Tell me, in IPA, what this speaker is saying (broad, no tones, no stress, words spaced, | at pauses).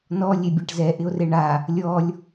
nɔ lʲebʲaʈzɛ ʔɪo̯reɳa | lʲɔlʲ